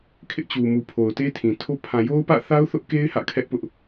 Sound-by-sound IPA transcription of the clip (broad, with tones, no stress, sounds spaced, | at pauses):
kʰ ɪ˦ ʔ t͡ɕ u˨ m u˨ pʰ o˨ ʊ̯ t e˦ tʰ ĩ˨ tʰ o˦ pʰ ã˨ j o˦ ʊ̯ p ä̰˦˨ θ a˦ ʊ̯ θ ʊ˦ ʔ k e˦ ɪ̯ h ä̰˦˨ kʰ ɛ˦ ʔ p ʊ˦ ʔ